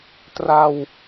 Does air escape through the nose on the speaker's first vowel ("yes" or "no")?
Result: no